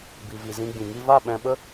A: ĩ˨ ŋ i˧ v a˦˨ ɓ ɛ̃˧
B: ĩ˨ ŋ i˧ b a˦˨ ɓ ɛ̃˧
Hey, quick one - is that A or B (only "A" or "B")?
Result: A